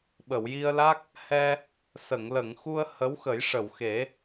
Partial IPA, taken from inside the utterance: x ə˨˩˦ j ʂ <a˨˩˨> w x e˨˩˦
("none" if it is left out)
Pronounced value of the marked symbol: ə˨˩˨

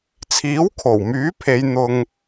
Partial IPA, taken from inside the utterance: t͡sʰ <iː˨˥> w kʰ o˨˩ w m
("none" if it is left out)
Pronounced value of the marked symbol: iː˨˥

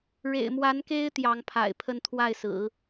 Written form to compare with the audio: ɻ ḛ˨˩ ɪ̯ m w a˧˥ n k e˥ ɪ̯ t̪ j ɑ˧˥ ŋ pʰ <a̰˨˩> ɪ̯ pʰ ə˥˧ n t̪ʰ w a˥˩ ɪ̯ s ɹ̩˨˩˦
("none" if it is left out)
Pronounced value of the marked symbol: a̰˨˩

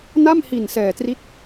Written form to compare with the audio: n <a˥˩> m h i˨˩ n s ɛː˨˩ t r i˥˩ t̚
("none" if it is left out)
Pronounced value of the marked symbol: a˥˩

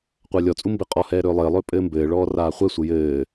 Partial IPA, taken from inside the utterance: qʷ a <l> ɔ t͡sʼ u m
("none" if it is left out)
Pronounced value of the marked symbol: lʲ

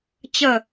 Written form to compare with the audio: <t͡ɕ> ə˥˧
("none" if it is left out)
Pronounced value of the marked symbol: t͡ɕ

